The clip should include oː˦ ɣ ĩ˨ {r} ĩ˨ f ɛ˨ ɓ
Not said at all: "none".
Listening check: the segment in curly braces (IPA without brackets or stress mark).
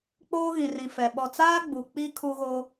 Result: r